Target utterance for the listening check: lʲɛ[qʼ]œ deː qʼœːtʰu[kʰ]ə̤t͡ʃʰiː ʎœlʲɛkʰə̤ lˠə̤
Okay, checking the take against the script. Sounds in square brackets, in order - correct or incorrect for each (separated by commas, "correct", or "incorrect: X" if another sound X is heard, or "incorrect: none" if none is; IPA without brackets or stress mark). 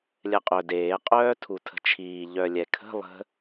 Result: correct, incorrect: tʰ